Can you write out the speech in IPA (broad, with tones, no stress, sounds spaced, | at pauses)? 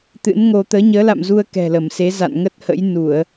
t̪ ɨ̰˧˥ n ŋ o˧ t̪ əː˨˦ ɲ əː˨˦ l a̰˧˨ m z u˧ ə̯ k ɛ̤˨˩ l ə˧˩ m s e˨˦ z a̰˧˨ n ŋ ə˦˥ t̚ h ə̰˧˥ j n u˧˩˨ ə̯